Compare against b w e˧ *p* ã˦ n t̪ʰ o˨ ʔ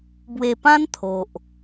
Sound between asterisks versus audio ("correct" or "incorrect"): correct